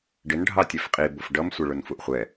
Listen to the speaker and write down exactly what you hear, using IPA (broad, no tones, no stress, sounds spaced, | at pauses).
ɖ ɪ n ɖʱ ɑ tʲ ɛ f qʼ i b ʊ f ɖ ʌ m sʷ ɪ ɭ ʊ n f u ʔ χʷ ɛ